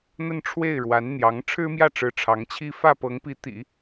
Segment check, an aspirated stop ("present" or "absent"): present